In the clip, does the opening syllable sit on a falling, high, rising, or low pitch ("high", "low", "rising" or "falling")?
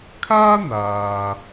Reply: high